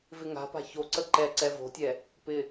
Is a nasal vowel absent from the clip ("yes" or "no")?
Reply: yes